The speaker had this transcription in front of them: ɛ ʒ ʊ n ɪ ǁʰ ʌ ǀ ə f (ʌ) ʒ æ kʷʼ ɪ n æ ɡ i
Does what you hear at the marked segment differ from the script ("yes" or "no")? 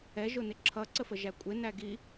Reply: yes